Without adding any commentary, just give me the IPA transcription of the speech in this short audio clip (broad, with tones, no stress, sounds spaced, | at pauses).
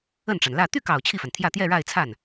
ə˥˩ n ʈ͡ʂ a˩ n l ä˥˧ t̪ y˥˩ k ɑ˨˩ ʊ̯ t͡ɕʰ i˥˩ f a˩ n t̪ʰ j ä˥˧ t̪ j ɛ˥˧ ɻ a˥˧ ɪ̯ t͡sʰ a˥˩ n